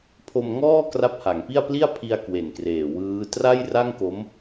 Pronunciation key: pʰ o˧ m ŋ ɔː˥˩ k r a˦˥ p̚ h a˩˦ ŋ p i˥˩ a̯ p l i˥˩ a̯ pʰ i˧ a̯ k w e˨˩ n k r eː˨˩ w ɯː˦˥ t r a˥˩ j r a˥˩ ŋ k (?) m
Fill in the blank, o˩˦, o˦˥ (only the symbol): o˦˥